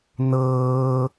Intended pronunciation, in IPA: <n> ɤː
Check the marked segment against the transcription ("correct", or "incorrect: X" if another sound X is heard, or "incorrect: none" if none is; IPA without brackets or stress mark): correct